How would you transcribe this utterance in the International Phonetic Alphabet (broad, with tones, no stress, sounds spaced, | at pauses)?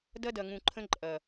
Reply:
d ɐ˦ d ɐ˨ ŋ ũ˨ ǃʰ ə̃˦ ǃʼ ɐ˨